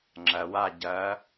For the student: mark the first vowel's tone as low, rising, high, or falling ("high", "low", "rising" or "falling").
low